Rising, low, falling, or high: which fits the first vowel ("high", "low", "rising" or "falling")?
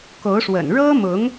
rising